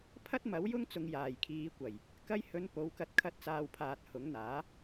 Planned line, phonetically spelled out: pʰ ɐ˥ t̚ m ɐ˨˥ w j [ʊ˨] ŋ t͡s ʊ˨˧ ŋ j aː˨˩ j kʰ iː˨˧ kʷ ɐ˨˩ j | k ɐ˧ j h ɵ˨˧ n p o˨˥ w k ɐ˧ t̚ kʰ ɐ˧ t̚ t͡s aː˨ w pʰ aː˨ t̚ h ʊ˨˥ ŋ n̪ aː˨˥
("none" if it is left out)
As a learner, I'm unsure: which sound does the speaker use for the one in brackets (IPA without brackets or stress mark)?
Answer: ʊ˥